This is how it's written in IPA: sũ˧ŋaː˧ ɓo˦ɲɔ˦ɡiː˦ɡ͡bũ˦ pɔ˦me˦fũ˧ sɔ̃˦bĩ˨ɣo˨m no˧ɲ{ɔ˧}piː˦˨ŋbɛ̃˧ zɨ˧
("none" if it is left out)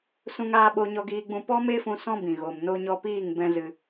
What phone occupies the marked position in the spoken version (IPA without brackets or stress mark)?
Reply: ɔ˧